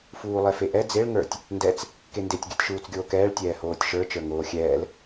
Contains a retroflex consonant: yes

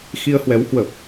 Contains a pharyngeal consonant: no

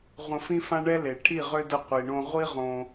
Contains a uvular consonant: yes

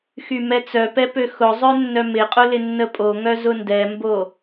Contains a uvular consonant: yes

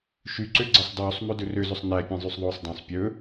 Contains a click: yes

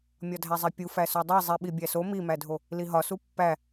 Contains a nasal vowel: no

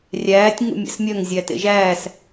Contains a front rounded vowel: yes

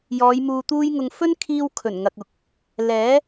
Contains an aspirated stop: yes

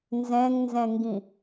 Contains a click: no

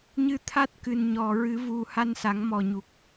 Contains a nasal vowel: no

